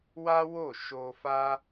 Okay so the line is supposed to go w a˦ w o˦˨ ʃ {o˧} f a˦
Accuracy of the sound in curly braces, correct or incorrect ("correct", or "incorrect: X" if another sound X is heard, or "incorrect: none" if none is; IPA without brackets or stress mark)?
correct